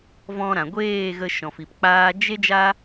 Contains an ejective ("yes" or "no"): no